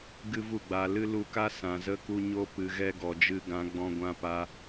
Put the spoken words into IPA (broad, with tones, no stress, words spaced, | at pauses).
ɡɨ˦vu˦˨ɡ͡ba˧ lɨ˦lu˧ka˦ sã˨zə˧ku˧ɲo˧ pɨ˨ɣɛ˧ ɡɔ˨d͡ʒɨ˧ɡã˨˦ ɡ͡bɔ̃˧ɡʷã˧pa˧